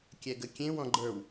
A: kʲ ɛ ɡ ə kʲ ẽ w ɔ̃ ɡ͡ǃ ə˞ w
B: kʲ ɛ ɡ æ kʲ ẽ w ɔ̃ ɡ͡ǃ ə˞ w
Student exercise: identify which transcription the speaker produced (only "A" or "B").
A